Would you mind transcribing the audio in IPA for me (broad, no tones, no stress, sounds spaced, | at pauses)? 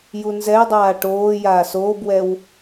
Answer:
j u n z ɛ j dˤ aː ʈ oː j aː s oː b w ɛ w